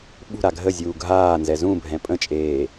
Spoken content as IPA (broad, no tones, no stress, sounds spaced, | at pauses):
ɓ ṳ ɾ a ɡʱ ə zʲ uː ɡʱ aː n z ɛ z ũ bʱ ɛ̃ pʼ ə̃ t͡ʃʼ eː